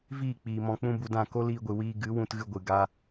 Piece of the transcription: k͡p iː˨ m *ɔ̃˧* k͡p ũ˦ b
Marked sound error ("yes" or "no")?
no